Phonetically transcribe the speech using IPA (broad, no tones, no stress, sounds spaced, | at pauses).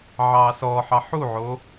ʕ ɑː s ɔ ħ ɑ ħ u ʕ o